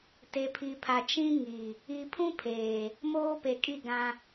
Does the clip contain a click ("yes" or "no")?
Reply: no